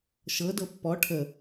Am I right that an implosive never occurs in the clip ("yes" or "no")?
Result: yes